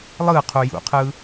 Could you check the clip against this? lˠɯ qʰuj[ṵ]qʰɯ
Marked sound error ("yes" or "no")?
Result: no